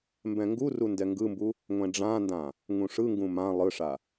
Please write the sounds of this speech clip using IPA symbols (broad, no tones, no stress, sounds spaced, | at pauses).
m b ɛ̃ ŋ ɡ u r u n d ɛ ŋ ɡ ɯ m b u | ŋʷ ɛ̃ ɖ͡ʐ ã n d ã | ŋ ũ ʂ ɯ ŋ ɡ ũ m ã lˠ ɯ ʂ a